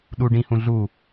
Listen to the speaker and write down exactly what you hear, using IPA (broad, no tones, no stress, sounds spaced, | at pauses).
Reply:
ɗ u ɖ ĩ h ũ ɮ u